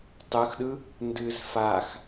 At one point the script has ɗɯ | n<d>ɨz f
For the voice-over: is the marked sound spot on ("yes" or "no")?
yes